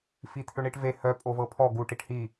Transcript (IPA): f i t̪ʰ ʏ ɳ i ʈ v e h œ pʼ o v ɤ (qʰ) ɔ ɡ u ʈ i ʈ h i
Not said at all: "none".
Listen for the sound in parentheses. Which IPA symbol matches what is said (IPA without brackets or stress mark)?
pʰ